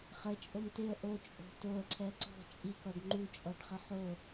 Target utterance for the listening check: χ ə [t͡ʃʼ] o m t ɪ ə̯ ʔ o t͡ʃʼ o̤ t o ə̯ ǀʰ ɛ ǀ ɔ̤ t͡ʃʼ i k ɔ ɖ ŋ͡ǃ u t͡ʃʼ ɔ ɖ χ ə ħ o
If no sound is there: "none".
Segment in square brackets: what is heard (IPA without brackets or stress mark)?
t͡ʃʼ